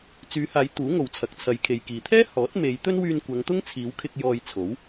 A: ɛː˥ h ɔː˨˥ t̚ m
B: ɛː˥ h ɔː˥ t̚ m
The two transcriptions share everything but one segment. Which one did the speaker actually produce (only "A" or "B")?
A